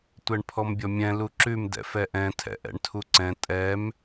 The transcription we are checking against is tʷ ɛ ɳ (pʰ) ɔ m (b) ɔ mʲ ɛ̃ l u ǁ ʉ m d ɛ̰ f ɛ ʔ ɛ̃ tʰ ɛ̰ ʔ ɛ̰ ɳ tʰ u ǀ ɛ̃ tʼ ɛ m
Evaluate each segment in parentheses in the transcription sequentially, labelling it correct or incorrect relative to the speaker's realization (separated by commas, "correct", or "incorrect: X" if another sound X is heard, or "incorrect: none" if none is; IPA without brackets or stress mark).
correct, incorrect: bʲ